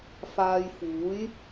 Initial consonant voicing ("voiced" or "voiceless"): voiceless